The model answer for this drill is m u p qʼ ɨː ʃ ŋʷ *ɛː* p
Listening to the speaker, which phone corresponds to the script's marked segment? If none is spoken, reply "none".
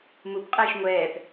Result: ɛː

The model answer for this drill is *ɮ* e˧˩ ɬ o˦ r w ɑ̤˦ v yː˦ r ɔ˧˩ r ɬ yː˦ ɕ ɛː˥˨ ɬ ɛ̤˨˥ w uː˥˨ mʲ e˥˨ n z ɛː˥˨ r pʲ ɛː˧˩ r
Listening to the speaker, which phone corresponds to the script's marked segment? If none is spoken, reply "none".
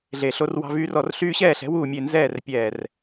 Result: ɮ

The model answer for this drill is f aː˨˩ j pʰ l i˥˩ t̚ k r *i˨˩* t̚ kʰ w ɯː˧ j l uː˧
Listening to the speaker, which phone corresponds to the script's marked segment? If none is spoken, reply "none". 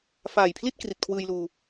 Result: i˨˩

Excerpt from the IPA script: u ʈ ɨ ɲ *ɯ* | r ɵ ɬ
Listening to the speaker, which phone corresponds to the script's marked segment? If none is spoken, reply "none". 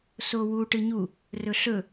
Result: u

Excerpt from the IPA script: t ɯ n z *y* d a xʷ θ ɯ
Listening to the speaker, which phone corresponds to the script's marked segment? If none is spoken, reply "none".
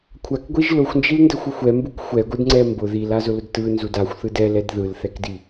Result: u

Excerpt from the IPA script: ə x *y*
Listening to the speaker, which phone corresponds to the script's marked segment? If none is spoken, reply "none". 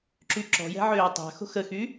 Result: y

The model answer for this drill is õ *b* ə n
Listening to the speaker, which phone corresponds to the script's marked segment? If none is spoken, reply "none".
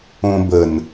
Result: b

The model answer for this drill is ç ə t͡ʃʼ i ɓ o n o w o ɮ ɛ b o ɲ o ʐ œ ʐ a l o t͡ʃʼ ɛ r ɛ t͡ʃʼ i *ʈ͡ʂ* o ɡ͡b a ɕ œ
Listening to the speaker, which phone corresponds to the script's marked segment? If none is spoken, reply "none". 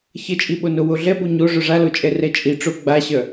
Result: ʈ͡ʂ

